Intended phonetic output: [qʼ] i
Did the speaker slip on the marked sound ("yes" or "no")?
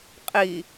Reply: no